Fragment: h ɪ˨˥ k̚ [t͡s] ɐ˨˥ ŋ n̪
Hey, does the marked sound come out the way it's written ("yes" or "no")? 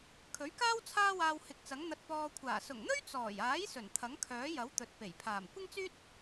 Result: yes